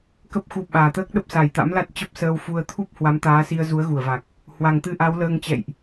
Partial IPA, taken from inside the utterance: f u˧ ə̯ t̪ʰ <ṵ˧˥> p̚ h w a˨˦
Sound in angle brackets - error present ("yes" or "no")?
yes